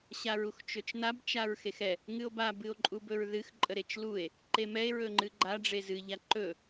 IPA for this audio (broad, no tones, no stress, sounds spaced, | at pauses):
ɕ a ɹ u x t͡ʃ ɵ t͡ʃ n a b t͡ʃ a ɹ x e x ɛ | ŋ ɨ o̯ b a b ɨ o̯ ǃʼ u b ɵ ɹ ð ɨ x ǃʼ ə ɾ e t͡ʃ l u e̯ | ǃ e m ɛ e̯ ɹ ɵ ŋ͡ǃ ɨ ɡ͡ǃ a ɖ͡ʐ e z ɨ ʎ a ǃ ɵ